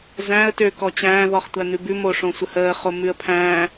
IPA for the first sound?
z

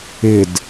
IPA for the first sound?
ɪ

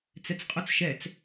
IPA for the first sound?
t͡s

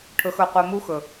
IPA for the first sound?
ʈʰ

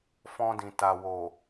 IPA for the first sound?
f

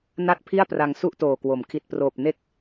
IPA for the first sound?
n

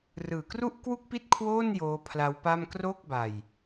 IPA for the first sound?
r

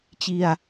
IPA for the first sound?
t͡ɕ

